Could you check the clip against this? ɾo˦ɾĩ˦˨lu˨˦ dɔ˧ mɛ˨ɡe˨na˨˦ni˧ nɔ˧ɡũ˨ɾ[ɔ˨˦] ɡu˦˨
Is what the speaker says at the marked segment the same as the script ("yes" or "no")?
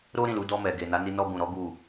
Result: yes